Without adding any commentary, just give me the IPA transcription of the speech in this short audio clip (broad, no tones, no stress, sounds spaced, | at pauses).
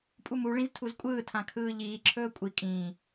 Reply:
pʼ u m u ɭ ĩ z tʰ u z kʷʼ ɯː tʰ ã kʰ ɯː ʎ iː ǁʰ ɵː kʷʼ i kʼ ĩː